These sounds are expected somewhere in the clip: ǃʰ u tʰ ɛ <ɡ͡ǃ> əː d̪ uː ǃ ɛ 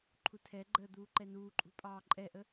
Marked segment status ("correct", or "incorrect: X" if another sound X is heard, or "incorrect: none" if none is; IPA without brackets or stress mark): correct